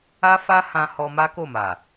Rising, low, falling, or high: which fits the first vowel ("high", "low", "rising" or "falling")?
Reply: high